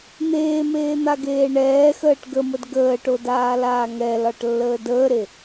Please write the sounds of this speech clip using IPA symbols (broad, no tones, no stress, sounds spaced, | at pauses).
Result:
n̪ eː m eː n̪ a ɡ eː ɳ ɛː x əː ʈ ɡ ə m ə d ɡ əː ʈ o d aː l aː ŋ ɛ l ɒ ʈ lː əː d əː ɾ e